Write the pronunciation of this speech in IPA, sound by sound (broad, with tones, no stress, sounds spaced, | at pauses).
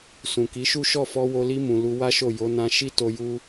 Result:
s ũ˨ k i˨˦ ʃ u˦ ʃ ɔ˦˨ f ɔ˧ w o˧ l i˧ m ũ˨ l u˧ w a˦ ʃ o˦˨ j o˨˦ n ã˧ ʃ i˦ t o˧ j u˦